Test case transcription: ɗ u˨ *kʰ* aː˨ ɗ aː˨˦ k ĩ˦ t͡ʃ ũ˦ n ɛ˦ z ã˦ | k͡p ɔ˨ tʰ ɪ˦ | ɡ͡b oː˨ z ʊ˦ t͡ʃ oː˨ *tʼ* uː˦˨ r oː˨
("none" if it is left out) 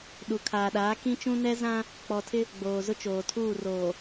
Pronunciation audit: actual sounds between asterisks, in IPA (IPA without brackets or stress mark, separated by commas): kʰ, tʰ